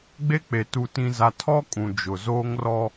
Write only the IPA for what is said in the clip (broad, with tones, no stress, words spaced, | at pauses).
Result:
ɡ͡be˦k͡pe˨ tu˨tĩ˨za˨tʰɔ˦ kʼũ˨ d͡ʒʊ˨ zoː˦ŋrɔ˦